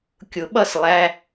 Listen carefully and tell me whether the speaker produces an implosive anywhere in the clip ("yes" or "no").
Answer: yes